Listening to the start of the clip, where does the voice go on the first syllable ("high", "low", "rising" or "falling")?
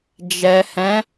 low